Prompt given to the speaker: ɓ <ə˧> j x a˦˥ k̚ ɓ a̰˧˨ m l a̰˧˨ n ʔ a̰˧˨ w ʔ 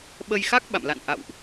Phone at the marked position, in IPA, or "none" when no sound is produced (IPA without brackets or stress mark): ə˧